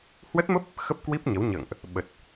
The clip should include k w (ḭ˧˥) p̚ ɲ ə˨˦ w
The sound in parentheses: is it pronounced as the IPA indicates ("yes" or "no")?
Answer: no